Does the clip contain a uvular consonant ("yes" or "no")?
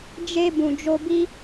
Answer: no